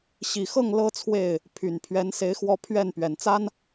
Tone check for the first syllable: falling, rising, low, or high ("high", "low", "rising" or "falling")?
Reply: low